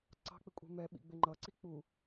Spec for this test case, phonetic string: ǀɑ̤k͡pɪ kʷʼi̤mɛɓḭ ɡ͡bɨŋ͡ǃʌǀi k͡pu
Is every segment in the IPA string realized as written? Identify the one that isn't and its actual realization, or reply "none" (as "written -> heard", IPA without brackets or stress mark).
ɨ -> ɪ